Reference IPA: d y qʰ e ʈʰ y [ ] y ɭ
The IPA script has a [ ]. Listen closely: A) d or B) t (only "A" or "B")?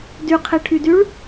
A